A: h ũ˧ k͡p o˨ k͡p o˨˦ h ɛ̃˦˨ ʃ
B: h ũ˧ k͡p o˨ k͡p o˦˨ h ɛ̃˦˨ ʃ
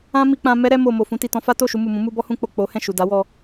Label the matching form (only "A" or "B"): A